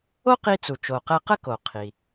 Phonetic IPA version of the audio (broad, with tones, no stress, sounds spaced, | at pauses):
o˥ q i˧ t͡s u˩ t͡ʃ o˩ q ɛ˧ q ə˥ k o˩ qʰ i˩